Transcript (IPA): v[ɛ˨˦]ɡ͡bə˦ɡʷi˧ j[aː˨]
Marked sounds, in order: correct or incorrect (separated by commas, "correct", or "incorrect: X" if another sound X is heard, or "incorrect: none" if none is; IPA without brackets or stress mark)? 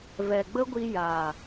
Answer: incorrect: ɛ˨, correct